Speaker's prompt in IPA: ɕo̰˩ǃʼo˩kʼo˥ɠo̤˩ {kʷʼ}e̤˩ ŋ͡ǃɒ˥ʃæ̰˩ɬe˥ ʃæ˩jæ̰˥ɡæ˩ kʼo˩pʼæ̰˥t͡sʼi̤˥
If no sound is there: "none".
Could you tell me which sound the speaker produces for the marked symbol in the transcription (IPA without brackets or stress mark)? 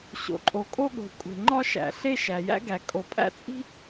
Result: kʷʼ